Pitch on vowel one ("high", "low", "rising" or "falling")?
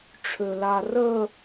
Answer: low